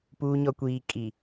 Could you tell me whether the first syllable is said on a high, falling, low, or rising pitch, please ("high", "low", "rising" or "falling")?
low